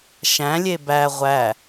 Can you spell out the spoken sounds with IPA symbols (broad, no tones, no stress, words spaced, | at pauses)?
ʃæ̃lʲe bæ ʁʷæ